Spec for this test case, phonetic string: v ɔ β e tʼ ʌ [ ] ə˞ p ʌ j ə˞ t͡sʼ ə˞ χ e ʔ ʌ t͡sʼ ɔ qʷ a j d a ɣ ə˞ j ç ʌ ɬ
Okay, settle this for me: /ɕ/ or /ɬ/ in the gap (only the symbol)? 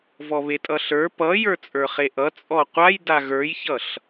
ɬ